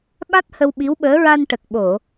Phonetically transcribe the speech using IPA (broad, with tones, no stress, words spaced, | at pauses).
ɓa˦˥t̚ hə˧wɓi˧˥wɓəː˧˥ ɹa˧nʈə˨˩k̚ ɓo˨˩˨